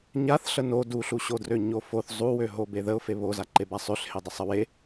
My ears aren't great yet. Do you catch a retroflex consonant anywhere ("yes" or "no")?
no